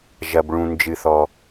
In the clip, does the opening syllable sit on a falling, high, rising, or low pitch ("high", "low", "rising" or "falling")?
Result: low